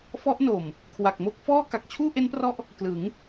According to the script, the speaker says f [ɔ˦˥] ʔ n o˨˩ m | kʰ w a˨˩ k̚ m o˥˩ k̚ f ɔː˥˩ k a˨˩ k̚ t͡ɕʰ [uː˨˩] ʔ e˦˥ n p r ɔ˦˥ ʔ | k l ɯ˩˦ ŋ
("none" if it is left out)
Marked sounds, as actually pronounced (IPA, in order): ɔ˦˥, uː˥˩

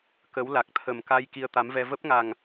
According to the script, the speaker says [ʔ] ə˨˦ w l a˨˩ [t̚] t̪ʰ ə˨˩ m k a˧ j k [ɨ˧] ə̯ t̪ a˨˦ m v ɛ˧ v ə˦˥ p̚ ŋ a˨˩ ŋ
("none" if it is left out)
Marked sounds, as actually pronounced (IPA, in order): k, k̚, i˧

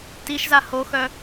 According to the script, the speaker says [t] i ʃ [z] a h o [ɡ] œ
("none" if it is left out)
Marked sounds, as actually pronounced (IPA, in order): t, z, x

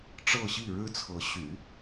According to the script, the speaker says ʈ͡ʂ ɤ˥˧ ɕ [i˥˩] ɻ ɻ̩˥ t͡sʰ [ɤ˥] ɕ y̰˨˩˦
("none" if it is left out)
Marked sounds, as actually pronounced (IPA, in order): i˥˩, ɤ˧˥

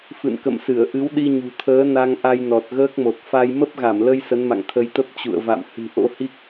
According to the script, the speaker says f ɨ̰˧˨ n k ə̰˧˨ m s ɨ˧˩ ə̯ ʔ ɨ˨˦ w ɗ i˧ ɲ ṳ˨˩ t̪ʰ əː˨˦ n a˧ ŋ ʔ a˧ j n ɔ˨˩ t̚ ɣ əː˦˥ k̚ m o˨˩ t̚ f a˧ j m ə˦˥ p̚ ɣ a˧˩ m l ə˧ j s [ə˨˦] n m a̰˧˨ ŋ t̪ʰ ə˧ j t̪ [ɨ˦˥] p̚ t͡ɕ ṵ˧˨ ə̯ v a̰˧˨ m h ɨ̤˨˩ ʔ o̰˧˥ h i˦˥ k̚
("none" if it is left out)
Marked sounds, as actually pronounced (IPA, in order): ə˨˦, ə˦˥

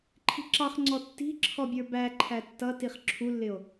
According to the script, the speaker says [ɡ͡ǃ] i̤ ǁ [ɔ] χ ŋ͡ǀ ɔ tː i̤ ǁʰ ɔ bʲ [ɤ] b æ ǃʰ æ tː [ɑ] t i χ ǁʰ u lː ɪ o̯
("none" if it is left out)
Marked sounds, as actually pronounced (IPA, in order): ǃʰ, ɑ, ə˞, ʌ

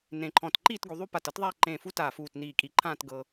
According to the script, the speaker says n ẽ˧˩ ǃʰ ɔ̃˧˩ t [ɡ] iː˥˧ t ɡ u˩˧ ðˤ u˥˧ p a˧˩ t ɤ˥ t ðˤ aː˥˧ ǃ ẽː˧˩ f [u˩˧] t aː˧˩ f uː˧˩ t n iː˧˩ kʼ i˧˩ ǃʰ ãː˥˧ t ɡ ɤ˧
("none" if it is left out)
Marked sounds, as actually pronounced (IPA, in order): ǃ, u˥

